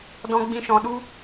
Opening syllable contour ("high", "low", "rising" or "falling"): high